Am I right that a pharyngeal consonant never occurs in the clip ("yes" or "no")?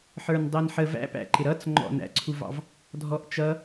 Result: no